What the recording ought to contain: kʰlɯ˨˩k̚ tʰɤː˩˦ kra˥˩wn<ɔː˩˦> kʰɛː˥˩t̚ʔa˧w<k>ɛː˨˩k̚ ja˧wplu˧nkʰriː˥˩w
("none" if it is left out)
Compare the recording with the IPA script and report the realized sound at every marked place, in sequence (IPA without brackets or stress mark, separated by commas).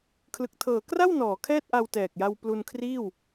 ɔː˩˦, t